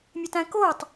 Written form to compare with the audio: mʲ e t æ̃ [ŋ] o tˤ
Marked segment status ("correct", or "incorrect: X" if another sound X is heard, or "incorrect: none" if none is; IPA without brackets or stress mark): incorrect: k